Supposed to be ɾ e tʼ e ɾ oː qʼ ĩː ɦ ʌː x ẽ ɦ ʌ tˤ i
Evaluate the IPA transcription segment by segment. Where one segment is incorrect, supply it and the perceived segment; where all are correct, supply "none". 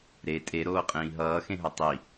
none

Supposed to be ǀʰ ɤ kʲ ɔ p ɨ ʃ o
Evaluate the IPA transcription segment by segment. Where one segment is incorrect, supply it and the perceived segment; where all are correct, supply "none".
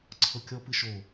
none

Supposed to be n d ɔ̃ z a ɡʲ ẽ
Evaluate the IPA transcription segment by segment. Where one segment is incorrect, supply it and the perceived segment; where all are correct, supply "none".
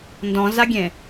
none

